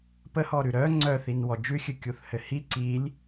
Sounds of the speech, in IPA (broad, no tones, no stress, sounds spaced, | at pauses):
p ə h ɔ ɾ ʉ ɾ œ ŋ͡ǀ œ θ i n w ɔ d͡ʒ ʉ xʲ ɨ kʲ u θ h ɘ h i ǀ i lʲ